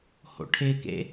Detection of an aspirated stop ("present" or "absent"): present